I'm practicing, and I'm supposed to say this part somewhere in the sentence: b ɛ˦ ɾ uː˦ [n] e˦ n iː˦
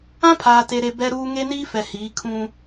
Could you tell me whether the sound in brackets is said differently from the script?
yes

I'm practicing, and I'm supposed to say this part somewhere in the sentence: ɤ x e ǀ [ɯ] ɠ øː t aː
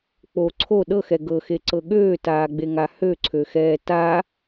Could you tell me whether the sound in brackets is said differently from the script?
yes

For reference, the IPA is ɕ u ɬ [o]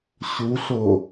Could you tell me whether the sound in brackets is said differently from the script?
no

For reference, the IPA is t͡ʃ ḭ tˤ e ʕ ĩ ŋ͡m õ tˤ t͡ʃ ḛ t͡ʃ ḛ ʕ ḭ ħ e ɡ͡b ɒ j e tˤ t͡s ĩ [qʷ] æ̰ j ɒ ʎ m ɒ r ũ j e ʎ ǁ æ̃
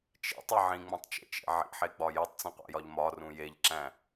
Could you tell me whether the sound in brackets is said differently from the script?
no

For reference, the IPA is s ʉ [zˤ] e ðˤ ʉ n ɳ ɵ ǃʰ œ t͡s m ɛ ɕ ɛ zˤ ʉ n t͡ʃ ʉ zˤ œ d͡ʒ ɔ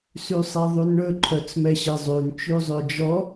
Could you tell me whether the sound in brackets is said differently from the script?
yes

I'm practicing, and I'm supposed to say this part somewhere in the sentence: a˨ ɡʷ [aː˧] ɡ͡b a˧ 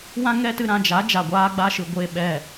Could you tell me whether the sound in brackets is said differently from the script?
no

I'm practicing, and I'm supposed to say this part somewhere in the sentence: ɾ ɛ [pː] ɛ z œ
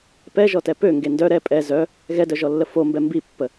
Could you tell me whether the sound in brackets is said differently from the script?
yes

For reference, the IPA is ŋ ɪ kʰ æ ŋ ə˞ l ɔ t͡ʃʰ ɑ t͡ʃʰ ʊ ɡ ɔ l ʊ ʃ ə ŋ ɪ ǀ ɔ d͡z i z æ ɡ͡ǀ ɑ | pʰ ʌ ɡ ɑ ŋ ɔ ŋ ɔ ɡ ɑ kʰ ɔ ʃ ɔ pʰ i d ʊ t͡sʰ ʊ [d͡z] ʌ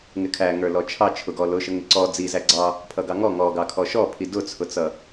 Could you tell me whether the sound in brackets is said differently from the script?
yes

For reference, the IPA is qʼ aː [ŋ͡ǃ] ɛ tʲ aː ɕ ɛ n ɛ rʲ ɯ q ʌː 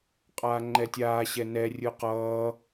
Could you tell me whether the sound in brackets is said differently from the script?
no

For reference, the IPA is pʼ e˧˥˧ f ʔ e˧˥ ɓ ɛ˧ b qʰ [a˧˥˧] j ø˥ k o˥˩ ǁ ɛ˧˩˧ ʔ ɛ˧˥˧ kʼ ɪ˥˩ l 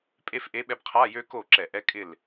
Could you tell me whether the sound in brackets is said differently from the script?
no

